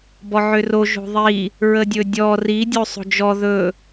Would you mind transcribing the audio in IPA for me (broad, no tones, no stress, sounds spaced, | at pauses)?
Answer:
b ɔ ʕ ʏ r o ʒ o̤ ðˤ i | ɹ ə dʲ ɵ dʲ ɔ r i dʲ o sˤ o̤ d͡ʒ ɔ ð ɵ